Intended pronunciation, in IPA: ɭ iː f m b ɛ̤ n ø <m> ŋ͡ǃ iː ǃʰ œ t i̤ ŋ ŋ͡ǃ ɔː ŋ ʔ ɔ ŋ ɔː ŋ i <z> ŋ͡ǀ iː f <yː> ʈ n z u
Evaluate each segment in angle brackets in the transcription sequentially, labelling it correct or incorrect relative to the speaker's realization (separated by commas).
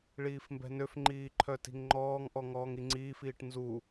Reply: incorrect, incorrect, incorrect